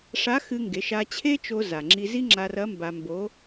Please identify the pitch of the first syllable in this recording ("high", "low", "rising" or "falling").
rising